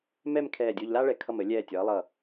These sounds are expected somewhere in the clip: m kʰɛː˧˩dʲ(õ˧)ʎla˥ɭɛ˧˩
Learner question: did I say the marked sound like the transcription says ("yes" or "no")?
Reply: no